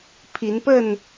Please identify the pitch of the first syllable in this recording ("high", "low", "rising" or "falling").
rising